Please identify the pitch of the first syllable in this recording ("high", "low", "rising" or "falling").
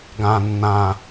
low